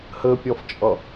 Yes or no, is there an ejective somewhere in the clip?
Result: yes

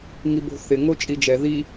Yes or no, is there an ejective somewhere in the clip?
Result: yes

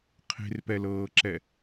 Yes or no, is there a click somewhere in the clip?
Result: yes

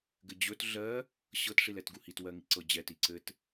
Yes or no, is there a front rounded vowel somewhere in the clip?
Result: no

